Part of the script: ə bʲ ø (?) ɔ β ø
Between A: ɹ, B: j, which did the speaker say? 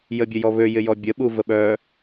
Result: B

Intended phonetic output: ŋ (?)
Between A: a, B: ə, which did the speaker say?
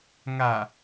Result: A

